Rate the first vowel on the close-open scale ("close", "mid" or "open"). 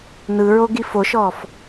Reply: close